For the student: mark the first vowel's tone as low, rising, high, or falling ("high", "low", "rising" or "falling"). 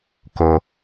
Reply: low